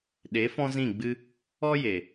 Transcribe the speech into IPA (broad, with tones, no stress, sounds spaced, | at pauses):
ɗ e˨˦ f ɔ̃˦ z ĩ˦˨ ɡ͡b ɨ˦ | ɔ˦ j e˨